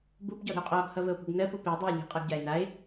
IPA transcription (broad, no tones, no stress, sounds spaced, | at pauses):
b u b ɟ ɔ ɾ ə̤ o̯ qʼ ɔ ɡ h ʌ v ə o̯ p ṳ ɡ n ɜ p u p i dˤ i o̯ lʲ o̤ qʼ ʌ ɡ ɟ a e̯ n a e̯